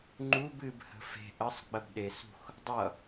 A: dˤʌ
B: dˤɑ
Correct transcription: A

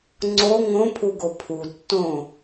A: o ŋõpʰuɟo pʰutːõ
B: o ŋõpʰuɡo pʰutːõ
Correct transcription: B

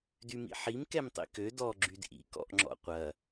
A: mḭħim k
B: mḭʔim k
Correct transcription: A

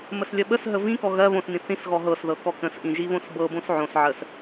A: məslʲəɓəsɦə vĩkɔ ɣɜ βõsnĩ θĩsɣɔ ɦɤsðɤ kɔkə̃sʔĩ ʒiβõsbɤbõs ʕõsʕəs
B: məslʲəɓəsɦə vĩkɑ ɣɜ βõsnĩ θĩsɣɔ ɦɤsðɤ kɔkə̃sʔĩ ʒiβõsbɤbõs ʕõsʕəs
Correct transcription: A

